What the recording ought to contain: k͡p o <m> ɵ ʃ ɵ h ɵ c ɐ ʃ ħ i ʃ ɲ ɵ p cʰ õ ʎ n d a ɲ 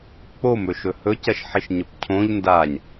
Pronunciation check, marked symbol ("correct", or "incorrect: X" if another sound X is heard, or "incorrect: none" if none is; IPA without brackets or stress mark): correct